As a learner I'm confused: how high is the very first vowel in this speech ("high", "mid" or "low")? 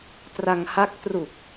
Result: low